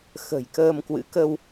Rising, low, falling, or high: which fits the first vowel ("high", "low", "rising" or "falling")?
low